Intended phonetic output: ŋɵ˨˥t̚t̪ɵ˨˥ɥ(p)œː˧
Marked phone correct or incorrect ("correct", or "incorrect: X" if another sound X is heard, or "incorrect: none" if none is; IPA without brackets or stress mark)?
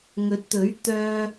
incorrect: t̪